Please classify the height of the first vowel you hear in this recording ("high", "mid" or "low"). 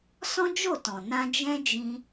mid